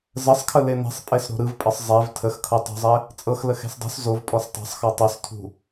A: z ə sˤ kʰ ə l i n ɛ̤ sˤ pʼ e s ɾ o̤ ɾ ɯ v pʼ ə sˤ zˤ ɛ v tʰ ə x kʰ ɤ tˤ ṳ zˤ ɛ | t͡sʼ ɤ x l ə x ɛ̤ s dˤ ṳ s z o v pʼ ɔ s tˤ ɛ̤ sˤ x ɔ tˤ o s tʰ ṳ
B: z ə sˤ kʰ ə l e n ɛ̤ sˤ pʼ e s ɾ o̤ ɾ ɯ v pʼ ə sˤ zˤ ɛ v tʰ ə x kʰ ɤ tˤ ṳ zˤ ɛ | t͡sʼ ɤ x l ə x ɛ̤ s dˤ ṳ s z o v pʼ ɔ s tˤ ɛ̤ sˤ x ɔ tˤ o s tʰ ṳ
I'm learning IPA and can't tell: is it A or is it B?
B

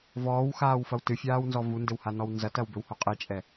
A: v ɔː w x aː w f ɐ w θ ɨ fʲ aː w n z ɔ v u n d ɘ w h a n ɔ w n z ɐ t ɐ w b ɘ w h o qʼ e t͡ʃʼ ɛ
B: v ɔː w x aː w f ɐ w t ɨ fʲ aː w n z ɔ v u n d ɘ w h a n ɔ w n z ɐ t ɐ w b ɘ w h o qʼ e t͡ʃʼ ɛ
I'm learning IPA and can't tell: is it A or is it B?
B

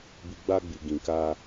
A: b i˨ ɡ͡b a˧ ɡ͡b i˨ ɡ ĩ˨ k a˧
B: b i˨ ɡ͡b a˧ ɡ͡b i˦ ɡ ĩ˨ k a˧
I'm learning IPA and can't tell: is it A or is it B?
A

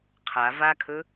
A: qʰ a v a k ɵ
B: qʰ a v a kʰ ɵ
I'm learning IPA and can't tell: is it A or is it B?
B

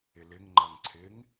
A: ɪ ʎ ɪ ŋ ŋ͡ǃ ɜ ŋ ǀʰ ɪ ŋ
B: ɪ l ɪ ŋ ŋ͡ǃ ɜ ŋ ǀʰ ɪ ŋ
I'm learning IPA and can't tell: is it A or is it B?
B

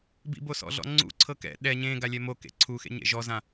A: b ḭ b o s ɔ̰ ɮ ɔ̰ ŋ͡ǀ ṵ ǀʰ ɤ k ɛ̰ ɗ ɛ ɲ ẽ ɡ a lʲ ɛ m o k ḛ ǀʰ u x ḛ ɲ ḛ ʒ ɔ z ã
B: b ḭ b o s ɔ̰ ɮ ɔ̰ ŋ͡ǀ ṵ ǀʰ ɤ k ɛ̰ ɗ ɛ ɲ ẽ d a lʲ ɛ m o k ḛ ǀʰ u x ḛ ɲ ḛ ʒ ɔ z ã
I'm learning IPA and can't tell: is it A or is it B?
A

